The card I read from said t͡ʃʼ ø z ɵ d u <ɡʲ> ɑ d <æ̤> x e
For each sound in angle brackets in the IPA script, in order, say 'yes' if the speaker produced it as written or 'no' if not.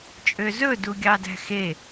yes, yes

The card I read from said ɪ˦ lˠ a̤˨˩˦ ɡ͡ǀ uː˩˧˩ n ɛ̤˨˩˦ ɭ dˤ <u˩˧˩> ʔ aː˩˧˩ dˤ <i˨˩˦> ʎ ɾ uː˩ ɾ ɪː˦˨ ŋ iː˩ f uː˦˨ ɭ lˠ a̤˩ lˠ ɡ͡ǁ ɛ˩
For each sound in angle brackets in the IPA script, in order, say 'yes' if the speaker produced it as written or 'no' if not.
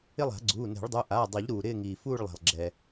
yes, yes

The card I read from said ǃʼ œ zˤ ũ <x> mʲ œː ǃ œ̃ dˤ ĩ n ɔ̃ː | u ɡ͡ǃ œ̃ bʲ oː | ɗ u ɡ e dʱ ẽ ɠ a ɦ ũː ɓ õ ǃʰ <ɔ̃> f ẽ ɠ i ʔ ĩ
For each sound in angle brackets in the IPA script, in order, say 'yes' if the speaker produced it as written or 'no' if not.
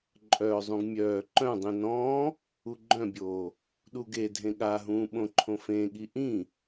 no, no

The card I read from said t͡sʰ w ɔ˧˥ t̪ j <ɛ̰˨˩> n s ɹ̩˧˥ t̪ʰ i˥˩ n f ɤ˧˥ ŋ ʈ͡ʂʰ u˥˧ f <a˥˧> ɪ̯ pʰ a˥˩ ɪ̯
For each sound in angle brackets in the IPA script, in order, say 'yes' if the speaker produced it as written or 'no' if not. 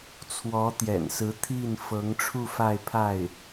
yes, yes

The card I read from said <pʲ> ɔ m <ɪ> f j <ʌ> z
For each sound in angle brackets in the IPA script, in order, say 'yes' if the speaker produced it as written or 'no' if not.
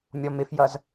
no, yes, yes

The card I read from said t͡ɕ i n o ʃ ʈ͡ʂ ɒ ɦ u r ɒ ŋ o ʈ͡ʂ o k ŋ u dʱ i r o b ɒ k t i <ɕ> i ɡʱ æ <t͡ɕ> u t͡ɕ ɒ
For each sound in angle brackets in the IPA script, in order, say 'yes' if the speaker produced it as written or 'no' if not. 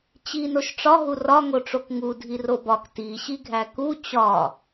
yes, no

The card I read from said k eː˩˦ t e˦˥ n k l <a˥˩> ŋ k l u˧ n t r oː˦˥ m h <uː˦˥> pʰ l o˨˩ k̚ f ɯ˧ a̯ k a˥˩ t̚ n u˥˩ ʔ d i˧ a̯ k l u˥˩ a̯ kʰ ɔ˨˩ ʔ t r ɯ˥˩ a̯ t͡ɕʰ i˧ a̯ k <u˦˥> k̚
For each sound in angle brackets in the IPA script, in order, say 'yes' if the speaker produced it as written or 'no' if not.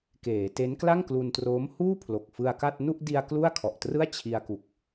yes, no, no

